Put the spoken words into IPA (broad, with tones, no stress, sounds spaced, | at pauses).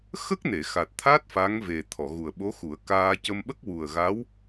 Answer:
x ə˦˥ k̚ n e˨˩˨ x a˨˩ t̚ t̪ʰ a˦˥ t̚ f a˧˥ ŋ v e˨˩ t̪ʰ ɔ˨˩˨ ɣ u˨˩ ə̯ ɓ o˧˥ x u˨˩˦ ə̯ k aː˧ c ə˧ m ɓ ə˦˥ k̚ w u˨˩ ə̯ ɣ a˧˥ w